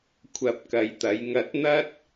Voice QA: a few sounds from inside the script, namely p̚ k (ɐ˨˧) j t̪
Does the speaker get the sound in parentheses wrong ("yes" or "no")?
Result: yes